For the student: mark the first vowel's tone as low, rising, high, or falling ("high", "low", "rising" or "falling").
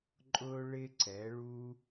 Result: high